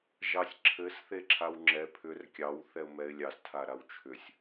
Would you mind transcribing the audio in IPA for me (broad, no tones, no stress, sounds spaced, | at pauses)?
ʒ ɑ sʲ ǁʰ ɘ s θ e ǁʰ a w ŋ͡ǁ ɛ pʰ ʏ r kʲ ɑ w θ ɛ ʊ̯ m ɛ ɪ̯ lʲ ɑ s tʰ a ɾ a w t͡ʃʰ ʏ sʲ